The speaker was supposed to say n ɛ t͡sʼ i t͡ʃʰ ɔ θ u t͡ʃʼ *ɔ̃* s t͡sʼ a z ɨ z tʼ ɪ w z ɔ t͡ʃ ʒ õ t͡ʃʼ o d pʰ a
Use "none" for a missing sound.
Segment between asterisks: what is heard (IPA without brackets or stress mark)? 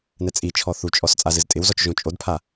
ɔ